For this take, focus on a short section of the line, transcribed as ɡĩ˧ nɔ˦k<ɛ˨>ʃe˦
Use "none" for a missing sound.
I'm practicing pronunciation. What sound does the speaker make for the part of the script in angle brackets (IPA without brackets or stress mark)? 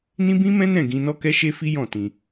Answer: ɛ˦